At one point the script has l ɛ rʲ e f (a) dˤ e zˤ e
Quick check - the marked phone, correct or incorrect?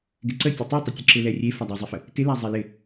correct